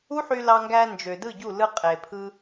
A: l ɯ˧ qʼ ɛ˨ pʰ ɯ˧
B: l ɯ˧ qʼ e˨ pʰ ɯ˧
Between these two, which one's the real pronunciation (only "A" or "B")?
B